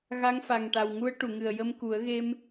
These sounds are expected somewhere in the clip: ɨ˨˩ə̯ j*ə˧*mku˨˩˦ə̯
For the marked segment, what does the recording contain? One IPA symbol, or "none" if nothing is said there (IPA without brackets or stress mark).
ə˧